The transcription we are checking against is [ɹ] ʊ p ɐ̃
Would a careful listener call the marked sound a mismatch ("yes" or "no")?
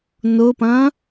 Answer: yes